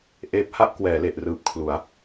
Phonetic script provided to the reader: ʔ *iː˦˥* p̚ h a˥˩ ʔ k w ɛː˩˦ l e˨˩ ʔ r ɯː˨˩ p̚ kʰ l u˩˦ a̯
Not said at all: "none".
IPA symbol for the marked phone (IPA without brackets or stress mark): eː˦˥